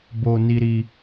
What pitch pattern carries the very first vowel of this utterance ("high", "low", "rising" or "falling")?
low